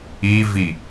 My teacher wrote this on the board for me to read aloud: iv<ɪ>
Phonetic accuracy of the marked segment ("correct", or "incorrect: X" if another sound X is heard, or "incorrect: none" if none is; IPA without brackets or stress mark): incorrect: i